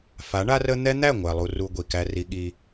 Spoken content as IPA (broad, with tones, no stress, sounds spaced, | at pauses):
f a˨˦ ɳ a˦ r ə˦ n̪ ɛ˦ n̪ æ˦˨ ŋʷ æ˨ lˠ u˨ r u˨ ɡʷ i˨ k æ˦ r i˦ ɠ i˦